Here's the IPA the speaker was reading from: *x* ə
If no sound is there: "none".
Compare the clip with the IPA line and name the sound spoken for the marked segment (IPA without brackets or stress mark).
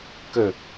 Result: k